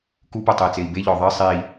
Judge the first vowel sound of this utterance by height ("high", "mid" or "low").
high